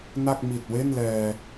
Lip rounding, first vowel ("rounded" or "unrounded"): unrounded